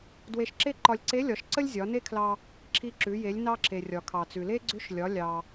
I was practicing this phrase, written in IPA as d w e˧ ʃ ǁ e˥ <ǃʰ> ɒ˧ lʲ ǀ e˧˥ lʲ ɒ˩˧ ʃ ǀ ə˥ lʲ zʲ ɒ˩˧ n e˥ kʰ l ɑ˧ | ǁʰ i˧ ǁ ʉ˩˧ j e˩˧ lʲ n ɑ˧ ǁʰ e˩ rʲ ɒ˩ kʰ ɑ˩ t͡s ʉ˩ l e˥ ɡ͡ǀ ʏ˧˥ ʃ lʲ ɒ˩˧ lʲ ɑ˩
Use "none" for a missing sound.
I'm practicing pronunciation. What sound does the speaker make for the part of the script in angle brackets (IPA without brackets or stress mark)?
ǃ